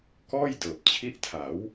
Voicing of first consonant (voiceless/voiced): voiceless